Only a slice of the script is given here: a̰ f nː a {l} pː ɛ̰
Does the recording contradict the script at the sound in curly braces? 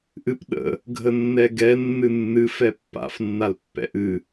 no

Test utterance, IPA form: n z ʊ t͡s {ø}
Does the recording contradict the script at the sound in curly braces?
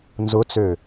no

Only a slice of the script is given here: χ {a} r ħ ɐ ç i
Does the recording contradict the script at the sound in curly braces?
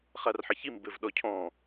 no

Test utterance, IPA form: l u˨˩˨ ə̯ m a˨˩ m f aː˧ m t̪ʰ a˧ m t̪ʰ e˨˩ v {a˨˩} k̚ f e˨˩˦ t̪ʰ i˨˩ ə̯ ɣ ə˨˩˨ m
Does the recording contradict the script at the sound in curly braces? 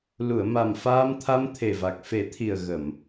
no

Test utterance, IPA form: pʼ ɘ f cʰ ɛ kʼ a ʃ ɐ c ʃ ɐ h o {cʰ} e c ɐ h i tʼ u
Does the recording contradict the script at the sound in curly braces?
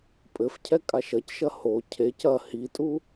no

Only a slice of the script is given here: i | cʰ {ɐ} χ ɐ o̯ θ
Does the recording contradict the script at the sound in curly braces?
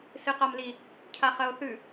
yes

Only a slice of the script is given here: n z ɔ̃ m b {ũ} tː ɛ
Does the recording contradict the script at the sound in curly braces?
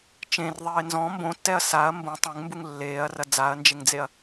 yes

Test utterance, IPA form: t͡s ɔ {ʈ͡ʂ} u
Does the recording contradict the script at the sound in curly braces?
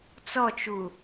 yes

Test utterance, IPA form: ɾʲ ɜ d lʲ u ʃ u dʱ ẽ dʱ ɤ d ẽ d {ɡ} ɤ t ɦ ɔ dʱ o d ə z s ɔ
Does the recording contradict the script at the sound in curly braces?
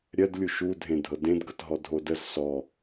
no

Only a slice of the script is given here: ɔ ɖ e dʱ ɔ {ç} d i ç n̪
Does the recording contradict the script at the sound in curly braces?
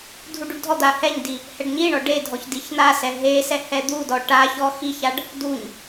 no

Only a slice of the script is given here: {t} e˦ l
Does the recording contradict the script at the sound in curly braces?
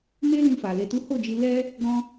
yes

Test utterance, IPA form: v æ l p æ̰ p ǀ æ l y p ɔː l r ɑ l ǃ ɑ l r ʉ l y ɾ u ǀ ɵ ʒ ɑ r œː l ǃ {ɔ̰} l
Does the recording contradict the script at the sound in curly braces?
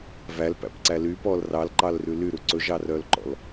no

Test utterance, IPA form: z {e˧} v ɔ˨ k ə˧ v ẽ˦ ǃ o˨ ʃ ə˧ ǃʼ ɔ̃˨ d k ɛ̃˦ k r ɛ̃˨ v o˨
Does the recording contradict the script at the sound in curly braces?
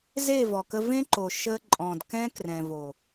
yes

